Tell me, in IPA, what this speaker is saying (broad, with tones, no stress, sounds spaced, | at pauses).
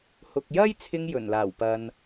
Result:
h ʊ˨ k̚ j ɐ˥ j t͡sʰ ɪ˧ ŋ j ɵ˨˩ n l aː˨˩ w p ɐ˨ n